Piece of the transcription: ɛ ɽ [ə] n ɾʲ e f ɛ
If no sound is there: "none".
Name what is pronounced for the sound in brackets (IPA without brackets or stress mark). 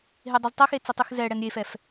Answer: ɛ